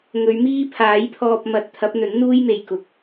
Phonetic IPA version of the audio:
ŋ ɵ˨˧ ɥ m iː˥ pʰ aː˨˥ j pʰ ɔː˧ p̚ m ɐ˨˥ t̚ t̪ʰ ɐ˨˥ p̚ n̪ ɵ˨˥ n n̪ uː˥ j m e˨ j k ʊ˨ k̚

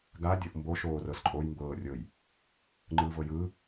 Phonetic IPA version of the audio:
ɡ a dʲ ɤ ʔ m b o ʃ oː r ɤ s ǃʼ o j m b ɤː rʲ ɤ j | ŋ͡ǃ ɯː v ɤ j ɯː

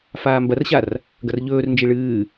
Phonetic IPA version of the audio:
f aː m b ɐ r ɕ a r | ɡ ɐ r ʎ ɵː r n d͡ʒ i ɭ ɨː

